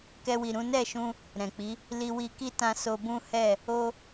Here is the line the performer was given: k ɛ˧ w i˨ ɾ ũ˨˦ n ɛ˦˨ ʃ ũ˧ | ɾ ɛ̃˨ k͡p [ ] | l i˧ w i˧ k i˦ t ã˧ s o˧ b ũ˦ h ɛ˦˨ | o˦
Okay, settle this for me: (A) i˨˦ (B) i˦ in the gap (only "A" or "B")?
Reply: A